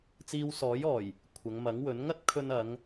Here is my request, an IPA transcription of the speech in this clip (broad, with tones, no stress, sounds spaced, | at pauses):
t͡s iː˧ w s ɔː˨˥ j ɔː˨˩ j | kʷʰ ɐ˨˧ ŋ m ɐ˨˥ ŋ w ɵ˨˥ n ŋ ɐ˥ t̚ kʰ ɵ˧ n ɐ˨˧ ŋ